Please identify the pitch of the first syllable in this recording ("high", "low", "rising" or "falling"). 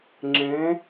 rising